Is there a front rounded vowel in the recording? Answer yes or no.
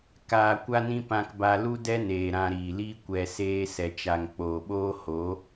no